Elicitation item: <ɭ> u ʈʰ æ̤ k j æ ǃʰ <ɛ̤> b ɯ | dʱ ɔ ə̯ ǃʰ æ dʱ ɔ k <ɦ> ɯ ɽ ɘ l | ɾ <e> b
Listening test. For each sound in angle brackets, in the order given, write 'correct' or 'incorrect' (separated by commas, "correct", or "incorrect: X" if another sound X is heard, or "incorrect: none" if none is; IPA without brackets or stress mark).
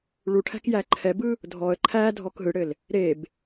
correct, incorrect: ɛ, correct, correct